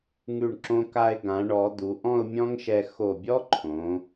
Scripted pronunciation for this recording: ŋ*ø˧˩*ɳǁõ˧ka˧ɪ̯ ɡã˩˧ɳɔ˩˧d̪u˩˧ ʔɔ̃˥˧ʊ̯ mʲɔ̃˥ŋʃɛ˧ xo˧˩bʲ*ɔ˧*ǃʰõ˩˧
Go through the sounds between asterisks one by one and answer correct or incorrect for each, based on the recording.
incorrect: ʉ˧˩, incorrect: ɔ˥

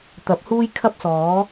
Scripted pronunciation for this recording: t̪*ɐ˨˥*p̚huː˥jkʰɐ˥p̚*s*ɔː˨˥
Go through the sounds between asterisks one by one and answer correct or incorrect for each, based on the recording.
correct, correct

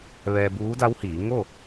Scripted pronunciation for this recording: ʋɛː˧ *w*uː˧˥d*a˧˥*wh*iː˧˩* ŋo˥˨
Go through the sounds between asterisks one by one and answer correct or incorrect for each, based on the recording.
incorrect: b, correct, incorrect: iː˩˧

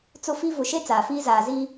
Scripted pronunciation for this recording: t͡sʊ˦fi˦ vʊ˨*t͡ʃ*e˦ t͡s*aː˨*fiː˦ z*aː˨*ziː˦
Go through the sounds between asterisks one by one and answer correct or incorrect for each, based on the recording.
incorrect: ʃ, correct, correct

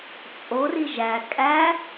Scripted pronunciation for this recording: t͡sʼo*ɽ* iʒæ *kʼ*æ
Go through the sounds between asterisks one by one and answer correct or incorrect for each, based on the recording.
incorrect: r, correct

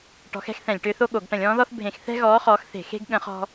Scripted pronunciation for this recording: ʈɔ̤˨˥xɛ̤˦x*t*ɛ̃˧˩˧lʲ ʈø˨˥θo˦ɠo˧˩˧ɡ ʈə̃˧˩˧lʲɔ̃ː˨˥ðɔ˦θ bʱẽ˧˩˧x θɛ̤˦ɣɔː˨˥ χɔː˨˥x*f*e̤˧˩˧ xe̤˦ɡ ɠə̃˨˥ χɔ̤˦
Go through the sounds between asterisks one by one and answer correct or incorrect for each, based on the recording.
incorrect: θ, incorrect: θ

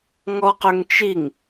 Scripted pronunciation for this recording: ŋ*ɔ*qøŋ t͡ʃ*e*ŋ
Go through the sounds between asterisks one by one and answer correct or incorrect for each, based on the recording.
correct, incorrect: i

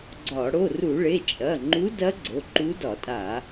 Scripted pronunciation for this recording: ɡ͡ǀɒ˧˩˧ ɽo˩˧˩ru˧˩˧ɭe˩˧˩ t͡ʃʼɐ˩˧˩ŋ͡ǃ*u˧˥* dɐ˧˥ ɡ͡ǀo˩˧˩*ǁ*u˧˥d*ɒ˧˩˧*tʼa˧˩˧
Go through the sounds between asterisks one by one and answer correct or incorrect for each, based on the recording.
correct, incorrect: ǃ, correct

